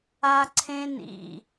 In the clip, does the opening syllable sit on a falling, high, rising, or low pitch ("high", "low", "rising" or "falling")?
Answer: high